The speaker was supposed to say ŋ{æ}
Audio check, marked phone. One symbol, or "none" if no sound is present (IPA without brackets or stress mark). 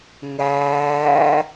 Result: æː